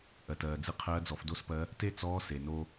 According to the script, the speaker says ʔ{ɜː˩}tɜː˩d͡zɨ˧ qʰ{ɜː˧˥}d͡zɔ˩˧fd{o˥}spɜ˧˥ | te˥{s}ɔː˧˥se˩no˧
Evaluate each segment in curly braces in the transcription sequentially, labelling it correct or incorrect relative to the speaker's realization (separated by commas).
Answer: incorrect, correct, correct, incorrect